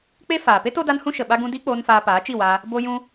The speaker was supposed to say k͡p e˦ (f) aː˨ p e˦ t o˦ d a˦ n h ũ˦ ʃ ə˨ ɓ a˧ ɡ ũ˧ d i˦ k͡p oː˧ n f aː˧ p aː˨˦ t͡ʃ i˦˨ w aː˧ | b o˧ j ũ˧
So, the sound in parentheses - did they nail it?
yes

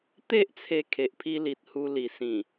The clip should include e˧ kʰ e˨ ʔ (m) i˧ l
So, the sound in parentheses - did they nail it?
no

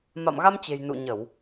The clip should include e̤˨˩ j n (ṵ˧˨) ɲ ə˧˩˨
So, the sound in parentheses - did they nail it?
yes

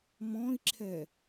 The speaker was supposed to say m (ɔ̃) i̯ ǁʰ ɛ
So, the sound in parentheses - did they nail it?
yes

